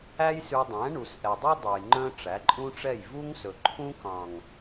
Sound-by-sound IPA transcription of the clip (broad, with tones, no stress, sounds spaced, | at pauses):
æ˦ j s ʉ˧ dˤ æ̃˨˦ ɳ u˨ s ʔ ɛ˨ dˤ u˦ dˤ e˨ j ŋ͡ǃ œ̃˦ ʈ͡ʂ æ˨˦ ǃʼ ũ˦ ʈ͡ʂ ɛ˦˨ j v u˦ ŋ s ɵ˨ ǃʰ ũ˦ k ɑ̃˨ ŋ